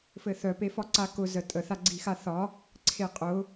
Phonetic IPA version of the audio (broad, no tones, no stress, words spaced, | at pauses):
fɘθœ pefɒǀakʊ zətʼə θaɡ͡ǀixaθɒ | ǀʰeqʼʊ